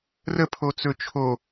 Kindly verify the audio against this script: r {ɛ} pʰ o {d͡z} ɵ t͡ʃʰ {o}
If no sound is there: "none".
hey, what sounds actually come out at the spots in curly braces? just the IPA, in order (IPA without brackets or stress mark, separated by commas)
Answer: ə, t͡s, o